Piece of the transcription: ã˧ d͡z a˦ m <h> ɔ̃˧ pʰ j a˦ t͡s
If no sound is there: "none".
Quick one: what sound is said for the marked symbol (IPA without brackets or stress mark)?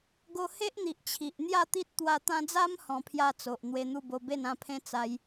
h